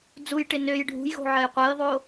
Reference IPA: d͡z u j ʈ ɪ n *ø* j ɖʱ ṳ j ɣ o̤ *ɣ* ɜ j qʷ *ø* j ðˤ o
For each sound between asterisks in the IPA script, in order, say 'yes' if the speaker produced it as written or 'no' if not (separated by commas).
yes, no, no